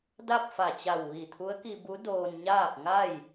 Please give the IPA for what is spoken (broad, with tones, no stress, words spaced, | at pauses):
da˥˨p̚fa˧˩t͡ɕa˧˩w ʋi˧˩t̪ʰu˧˥ə̯ki˧bu˧˥ doː˧nɲaː˥˨p̚ ŋa˥˨j